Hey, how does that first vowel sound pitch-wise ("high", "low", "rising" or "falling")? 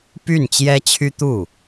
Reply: falling